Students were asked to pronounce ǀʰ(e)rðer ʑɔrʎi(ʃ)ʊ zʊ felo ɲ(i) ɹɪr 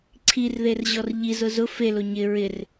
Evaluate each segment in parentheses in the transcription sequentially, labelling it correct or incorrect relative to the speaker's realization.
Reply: incorrect: i, incorrect: z, incorrect: ɪ

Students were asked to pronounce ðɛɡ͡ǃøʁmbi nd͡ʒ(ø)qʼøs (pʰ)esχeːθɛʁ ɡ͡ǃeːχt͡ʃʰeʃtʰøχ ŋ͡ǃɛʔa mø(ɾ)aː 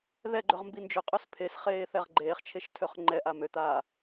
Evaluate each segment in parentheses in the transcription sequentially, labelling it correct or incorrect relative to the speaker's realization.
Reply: correct, correct, incorrect: t̪

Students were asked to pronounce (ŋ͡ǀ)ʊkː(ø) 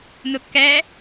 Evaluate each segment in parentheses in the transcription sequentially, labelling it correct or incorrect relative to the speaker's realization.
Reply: incorrect: n, incorrect: ɛ

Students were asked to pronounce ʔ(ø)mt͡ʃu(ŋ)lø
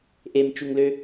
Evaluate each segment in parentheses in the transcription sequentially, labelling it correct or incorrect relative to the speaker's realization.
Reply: incorrect: e, correct

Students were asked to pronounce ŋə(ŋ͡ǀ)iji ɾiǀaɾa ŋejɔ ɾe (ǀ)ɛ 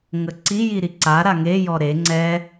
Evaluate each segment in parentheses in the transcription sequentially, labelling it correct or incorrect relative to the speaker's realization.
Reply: incorrect: ǀ, incorrect: ŋ͡ǀ

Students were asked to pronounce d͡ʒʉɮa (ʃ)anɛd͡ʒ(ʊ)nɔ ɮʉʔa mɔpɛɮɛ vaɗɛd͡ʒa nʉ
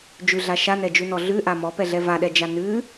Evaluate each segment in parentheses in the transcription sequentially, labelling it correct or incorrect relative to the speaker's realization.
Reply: correct, incorrect: ʉ

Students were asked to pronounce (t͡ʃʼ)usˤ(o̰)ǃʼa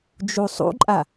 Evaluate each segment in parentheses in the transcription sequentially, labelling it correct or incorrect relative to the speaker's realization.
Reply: incorrect: d͡ʒ, incorrect: ṵ

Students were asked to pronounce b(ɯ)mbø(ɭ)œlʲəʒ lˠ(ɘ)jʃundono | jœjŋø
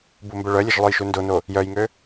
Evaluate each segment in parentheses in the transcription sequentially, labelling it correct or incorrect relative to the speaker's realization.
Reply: incorrect: u, correct, incorrect: ø

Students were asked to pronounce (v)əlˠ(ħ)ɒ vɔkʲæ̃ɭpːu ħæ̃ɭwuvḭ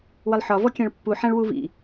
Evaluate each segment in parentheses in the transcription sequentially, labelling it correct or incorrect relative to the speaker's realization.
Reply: incorrect: w, correct

